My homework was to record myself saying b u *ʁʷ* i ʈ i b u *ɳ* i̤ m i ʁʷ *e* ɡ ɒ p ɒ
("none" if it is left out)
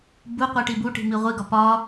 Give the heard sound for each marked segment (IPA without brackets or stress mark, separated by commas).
qʷ, ʈ, i